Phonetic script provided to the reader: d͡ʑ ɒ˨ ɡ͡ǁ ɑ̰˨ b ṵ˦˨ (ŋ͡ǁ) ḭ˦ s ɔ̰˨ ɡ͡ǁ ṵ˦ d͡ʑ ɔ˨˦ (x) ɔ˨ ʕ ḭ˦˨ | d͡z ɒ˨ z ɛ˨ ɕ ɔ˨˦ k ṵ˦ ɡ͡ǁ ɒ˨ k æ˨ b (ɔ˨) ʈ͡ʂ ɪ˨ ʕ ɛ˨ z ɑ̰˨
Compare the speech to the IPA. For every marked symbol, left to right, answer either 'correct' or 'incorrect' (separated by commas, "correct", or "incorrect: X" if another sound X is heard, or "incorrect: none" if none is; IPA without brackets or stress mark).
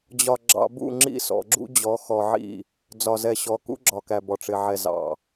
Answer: correct, correct, correct